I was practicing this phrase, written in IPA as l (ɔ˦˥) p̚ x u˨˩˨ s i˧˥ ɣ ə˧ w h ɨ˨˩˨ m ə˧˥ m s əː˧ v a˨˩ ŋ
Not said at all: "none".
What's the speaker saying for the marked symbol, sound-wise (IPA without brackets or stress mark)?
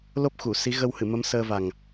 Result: o˦˥